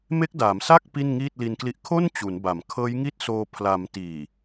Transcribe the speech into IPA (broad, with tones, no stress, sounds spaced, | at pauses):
m e˦˥ k̚ d aː˩˦ m s a˥˩ k̚ p i˥˩ n ŋ iː˥˩ t̚ l i˧ n k l i˦˥ ʔ kʰ o˥˩ n t͡ɕ u˩˦ n b a˨˩ m kʰ ɤː˦˥ j ŋ i˥˩ t̚ s oː˧ pʰ l a˩˦ m t iː˨˩